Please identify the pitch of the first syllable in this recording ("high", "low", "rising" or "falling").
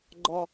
high